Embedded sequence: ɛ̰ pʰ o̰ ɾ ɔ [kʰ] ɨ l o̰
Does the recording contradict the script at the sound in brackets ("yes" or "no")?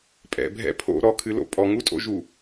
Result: no